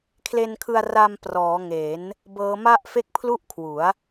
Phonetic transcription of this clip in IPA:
kʰ l e˧ n kʰ ɯ˧ a̯ r a˧ m p r ɔː˩˦ ŋ e˩˦ n | b ɤː˦˥ m a˥˩ ʔ f e˥˩ k̚ pʰ l u˥˩ ʔ kʰ w u˩˦ a̯

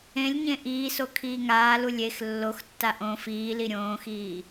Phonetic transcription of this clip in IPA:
ẽ lʲ ɲ ẽ ʔ iː s o kʰ iː ŋ aː l u lʲ e x lː o x tː a ʔ õ f iː l i ɾʲ õː x iː

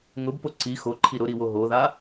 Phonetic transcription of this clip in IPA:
ŋ ʊ b p o ǀ i x o ǃʰ i ɾ ʊ ɾ i w o ɦ o ð a

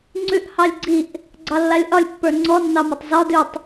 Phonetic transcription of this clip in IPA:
ŋ͡ǀ ʉ ʔ h ɑ lʲ ɡ͡ǀ i ʔ | ɡ͡ǀ ɑ lː a lʲ ʔ ɒ lʲ pː ə˞ ŋ͡ǀ ɔ nː ɑ m ɒ tˤ z ɒ d ʉ tˤ

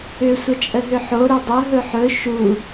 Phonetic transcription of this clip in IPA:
ʏ sʷ ə t͡ʃʼ ə ɦ ʏ ħ o ɾ ø dˤ ɵ ɦ ɵ ħ ɵ ʃ u

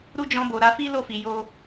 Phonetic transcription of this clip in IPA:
ɾ u˦ d͡ʒ ɔ̃˧ b o˨ ɾ a˧ f i˦ l o˦˨ f i˨ j o˧

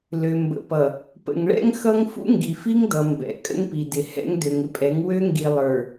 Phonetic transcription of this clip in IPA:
l ø˨ m b ə̰˨ p ʌ˨ | p ə̰˨ ŋ ɭ ɛ̰˦ ŋ x ʌ˦ ŋ f ṵ˦ ŋ ɡ i˨ f i˦ ŋ d ʌ˨ m b ɛ̰˨ kʼ ə̰˦ ŋ p i˨ d ɪ˨ h ɛ̰˦ ŋ d ø˨ ŋ ɪ˦ pʼ ɛ˨˦ ŋ w ø˦ ŋ ɡ i˨ lˠ ə˞˨

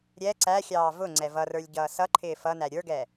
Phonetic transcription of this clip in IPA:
ɾʲ ɛ ǀ æ xʲ ɑː v ʊ ŋ͡ǀ ɛ v ʌ r ə˞ lʲ ɟ ʌː s ʌ ǃʰ ɪː f ʌ n æ ɾʲ ə˞ ɡ ɛ

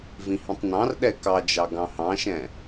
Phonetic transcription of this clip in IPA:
v ĩ h ĩ tˤ n ɑ̃ r ɗ ɛ k ɑ d͡ʒ ɑ ɡ ɑ̃ h ɑ̃ ʃ ɛ̃

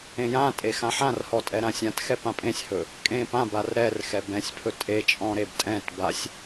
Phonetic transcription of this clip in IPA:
ẽ j ã tʼ e x ã ħ ã r h ɔ tʼ ɛ ɾ ã sʲ ã t x ɛ p ã pʼ ẽ sʲ h ɵ | kʼ ẽ p ã b a r ɾ ɛ r x ɛ b ɛ̃ sʲ pʰ ɵ tʼ e t͡ʃʼ ɔ̃ ɾ e b tʼ ɛ̃ t b a sʲ

